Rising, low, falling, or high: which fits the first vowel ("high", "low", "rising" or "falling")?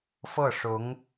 falling